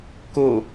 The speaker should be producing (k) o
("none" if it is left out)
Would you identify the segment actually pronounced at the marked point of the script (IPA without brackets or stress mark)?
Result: k